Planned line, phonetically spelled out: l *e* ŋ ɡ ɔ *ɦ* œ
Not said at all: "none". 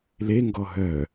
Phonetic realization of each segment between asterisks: e, ɦ

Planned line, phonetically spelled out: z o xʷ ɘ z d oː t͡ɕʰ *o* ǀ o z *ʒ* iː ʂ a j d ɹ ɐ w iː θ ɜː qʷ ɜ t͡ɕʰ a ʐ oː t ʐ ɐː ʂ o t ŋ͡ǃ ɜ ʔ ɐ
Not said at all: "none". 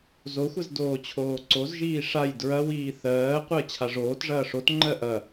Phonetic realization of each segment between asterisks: oː, ʒ

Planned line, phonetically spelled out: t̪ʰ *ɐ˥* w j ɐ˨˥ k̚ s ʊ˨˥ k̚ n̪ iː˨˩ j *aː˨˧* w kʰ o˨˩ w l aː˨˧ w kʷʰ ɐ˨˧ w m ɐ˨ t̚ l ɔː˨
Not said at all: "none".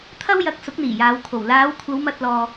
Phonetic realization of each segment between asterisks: ɐ˥, aː˨˧

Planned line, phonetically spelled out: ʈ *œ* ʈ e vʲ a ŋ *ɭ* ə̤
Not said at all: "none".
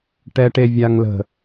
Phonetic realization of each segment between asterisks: ɛ, l

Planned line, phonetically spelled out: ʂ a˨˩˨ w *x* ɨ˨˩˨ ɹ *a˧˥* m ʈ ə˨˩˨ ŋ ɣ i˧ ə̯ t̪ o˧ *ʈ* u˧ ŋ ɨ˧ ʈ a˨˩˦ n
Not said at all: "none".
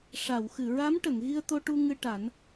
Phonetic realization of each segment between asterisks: x, a˧˥, ʈ

